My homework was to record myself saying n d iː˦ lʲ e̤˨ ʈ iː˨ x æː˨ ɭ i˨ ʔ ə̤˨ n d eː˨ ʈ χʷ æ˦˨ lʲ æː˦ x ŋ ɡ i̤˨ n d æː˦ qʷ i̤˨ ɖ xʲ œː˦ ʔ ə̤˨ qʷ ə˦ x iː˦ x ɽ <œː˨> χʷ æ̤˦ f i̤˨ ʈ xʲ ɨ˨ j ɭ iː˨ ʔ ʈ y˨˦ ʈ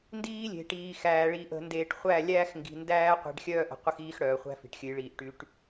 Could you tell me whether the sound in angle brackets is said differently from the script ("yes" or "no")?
no